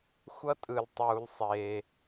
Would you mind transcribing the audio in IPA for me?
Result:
xʷʌ˥tʼɯ˩ltˤuː˩l sˤe˩

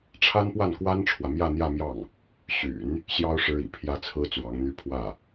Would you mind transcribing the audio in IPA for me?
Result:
ʈ͡ʂʰa˥npwa˥˩nkwa˥nʈ͡ʂʰwä˨ mjä˥˧n̪jä˥˧mjɑ˥˩ŋ | ɕy̰˨˩˦n | ɕjɑ˥ʊ̯ ʂɻ̩˥ḭ˨˩ pʰjä˥t͡sʰɹ̩˥ t͡swɑ˧˥ŋn̪y˥ pʰwä˥˩

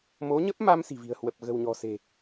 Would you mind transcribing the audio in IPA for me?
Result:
mo˨˦ɲə˦˥p̚ma˧m si̤˨˩vi̤˨˩ə̯hwə˨˩p̚ ɣə̤˨˩wɲɔ̤˨˩se̤˨˩

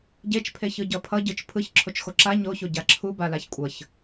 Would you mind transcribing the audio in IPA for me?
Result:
ɟet͡ʃpʰe çɯɟʌpʰʌ ɟɯt͡ʃpʰɯç ǁʰot͡ʃxoǁa ɲoço ɟaǁʰu balaçkʷʼʌç

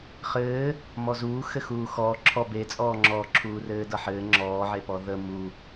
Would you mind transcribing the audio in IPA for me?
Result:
χɘː | mɔzuː xɘxuːxɔː ǁʰɔ bet͡sʼɔːŋ͡ǁɔː ǁʰuːrɘːdʌħɘː ŋ͡ǁɔːʕepɔ ðə mu

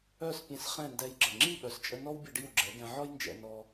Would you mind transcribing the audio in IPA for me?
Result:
œ˥˩s pʲɛ̃˧sχɛ̃˥˩ndɛ˧jɡ͡ǁə˩ ŋ͡ǁi˥˩ɓœ˩˥st͡ʃʼə˧ nɔ˥wbʲə˥˩ɖi˥˩w ɡ͡ǁɛ˩˥ɡɛ̃˧ ʕɔ˥jnd͡ʒɛ̰˧ nɔ˧

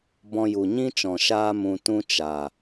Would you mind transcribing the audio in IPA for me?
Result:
bɔ̃˧ju˨ ɲĩ˦t͡ʃɔ̃˨ ʃaː˧mũ˨ tũ˦t͡ʃa˨

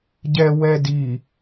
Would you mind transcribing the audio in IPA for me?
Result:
ɟɛwɛ di

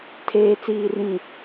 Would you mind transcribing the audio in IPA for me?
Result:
tʰeː˨ t͡siː˨rĩ˨

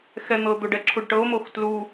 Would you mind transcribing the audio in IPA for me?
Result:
xɛn̪ɤd̪oɖ ɛǁʰuɖʈɤo̯mox tlu

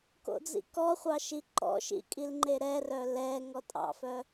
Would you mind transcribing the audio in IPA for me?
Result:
ko̰d͡zḭkɔχʷɑ ʃiǃɔ̰ʃḭ kʼilŋ͡ǃeɾɛrœ lɛ ŋɔtʼɑ̰fœ

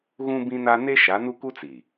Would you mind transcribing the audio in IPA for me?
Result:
ɣũ˦ bĩ˦na˦ ne˦ ʃa˨˦nu˦ku˦t͡si˨

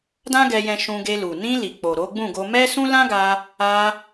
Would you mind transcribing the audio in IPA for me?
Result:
dã˦ɡɛ˧jɛ̃˧ ʃũ˧ɡe˧lu˨ nĩ˧ li˨ k͡po˨ɾo˨˦ɡ͡bũ˦˨ɡo˧ mɛ˦sũ˦lã˦ɡa˧ | a˧

